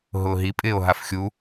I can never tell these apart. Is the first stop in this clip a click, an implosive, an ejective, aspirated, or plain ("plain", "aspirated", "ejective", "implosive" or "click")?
ejective